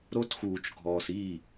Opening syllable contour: high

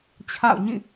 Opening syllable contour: falling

